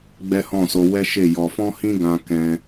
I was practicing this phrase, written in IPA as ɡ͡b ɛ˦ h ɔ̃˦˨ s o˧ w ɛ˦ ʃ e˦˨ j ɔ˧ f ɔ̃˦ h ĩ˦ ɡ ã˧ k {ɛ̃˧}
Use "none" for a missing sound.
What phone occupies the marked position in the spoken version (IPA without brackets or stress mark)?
ɛ̃˧